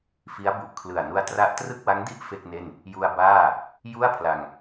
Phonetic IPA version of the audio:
fi˦˥a̯bu˨˩ʔ kʰlɯ˨˩a̯nu˦˥a̯ tra˦˥ʔtrɯ˥˩k̚wa˦˥ŋ di˥˩ʔ fe˥˩k̚ne˥˩n | ju˧a̯baː˥˩ | ju˥˩a̯pʰla˧ŋ

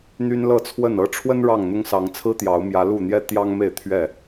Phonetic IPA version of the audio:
n̪y˦nlɤ˥˨t͡sʰwə˥˨n ɤ˥˨ ʈ͡ʂʰwə˦n ɻɑ˥˨ŋn̪ʊ˦ŋ sɑ˨˦ŋt͡sʰɹ̩˦ t̪jɑ˨˦ʊ̯mjä˨˦lu˥˨n̪jɛ˦ t̪jɑ˦ŋ me˥˨ɪ̯t̪ʰɥɛ˥˨

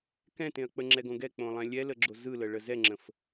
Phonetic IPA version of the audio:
kɛ̃tẽɐ̯ k͡pəŋ͡ǁɛɡõ ɡɛk͡põlˠɛ̃ lʲɛləɡ͡ǁo zɯləɭə zɛŋ͡ǁə̃f

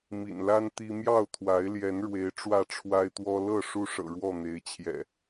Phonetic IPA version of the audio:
mḭ˨˩nla˦n t̪i˦ mjɑ˥˨ʊ̯t̪ʰwa˨˦ɪ̯ljɛ˨˦nɻwe˨˦ɪ̯ ʈ͡ʂwä˥˨ʈ͡ʂʰwa˦ɪ̯t̪wɔ˦ lɤ˥˨ ʂu˦ʂɤ̰˨˩ɻwɔ˥˨ n̪e˨˦ɪ̯t͡ɕʰjɛ̰˨˩

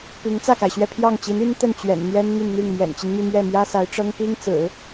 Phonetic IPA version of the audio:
pi˧˥ŋt͡sä˥˩ka˩ɪ̯ɕɥɛ˥˧ pʰjɑ˥˩ŋt͡ɕi˧˥n y˥nt̪ə˥˩n t͡ɕɥɛ̰˨˩nn̪jɛ˥n n̪y˥˧nn̪i˥˩ŋ mjɛ̰˨˩nt͡ɕi˦nmy˥˧ mɥɛ˥˩mjä˥ sa˧˥ɪ̯ʈ͡ʂɤ˥ŋ pi˥ŋt͡sɹ̩˨˩˦

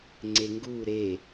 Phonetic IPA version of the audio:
ŋ͡ǀeŋɡu ɾe

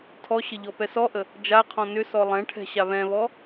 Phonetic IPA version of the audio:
tʰɔɕə ʎɔpɛsɔʔə | d͡ʒaqʰɔ̃ nʏ sɔlˠɛ̃ʈʰɛ̤ ɕaβɛ̃βɔ

